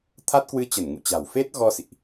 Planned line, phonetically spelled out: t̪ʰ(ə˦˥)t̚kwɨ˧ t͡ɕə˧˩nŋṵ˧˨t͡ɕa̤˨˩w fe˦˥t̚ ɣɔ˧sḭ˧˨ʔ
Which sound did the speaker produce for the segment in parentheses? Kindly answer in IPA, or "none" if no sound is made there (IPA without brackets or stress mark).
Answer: a˦˥